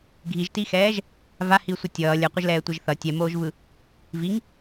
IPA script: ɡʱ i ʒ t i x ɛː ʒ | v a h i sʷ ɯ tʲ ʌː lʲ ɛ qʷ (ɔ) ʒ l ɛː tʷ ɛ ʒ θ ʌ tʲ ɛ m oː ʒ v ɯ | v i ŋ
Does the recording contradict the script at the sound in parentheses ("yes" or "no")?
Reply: yes